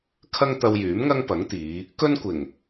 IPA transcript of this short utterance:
kʰɐ˥ŋt̪ɐ˧wjyː˨˥mŋɐ˥ŋ pɐ˨˥ŋt̪iː˨˧ | kɵ˥nkʷɪ˨˩ŋ

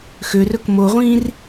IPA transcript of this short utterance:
xørɵk moːʁʷĩːr

